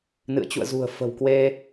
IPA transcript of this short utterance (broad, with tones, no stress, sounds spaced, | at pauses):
n ɨ̰˧˨ ə̯ t͡ɕ ṵ˧˨ ə̯ z ṳ˨˩ ə̯ f ə̤˨˩ w k w e˧